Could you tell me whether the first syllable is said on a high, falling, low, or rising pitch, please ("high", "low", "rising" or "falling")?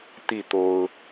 falling